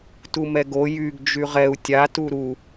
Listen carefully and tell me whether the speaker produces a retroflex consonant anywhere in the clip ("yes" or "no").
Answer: no